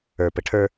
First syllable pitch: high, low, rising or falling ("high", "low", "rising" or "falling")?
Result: low